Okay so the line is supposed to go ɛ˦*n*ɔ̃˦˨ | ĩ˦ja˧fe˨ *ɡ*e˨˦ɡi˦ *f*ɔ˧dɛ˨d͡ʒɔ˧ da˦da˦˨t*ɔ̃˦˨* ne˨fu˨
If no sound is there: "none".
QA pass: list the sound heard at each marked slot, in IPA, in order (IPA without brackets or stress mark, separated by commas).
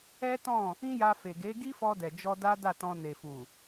t, ɡ, f, ɔ̃˧